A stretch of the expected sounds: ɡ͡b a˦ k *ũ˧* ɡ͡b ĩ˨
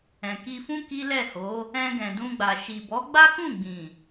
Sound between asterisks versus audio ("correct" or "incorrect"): incorrect